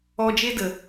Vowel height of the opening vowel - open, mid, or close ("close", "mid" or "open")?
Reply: mid